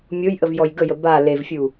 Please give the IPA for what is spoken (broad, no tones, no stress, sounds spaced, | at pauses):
mʲ o j ʔ ə v j ɔ j ɡ ə j ə b a l e v fʲ u